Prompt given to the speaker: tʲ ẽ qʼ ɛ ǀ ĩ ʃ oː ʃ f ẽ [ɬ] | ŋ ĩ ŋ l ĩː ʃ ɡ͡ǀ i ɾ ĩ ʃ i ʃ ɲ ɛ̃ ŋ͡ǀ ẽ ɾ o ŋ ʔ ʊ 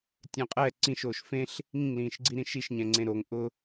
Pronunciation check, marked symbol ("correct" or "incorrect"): correct